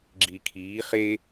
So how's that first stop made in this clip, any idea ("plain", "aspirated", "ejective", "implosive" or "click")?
click